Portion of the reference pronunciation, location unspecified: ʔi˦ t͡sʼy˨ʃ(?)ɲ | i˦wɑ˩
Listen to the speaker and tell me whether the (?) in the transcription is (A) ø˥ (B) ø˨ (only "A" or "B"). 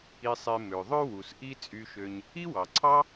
B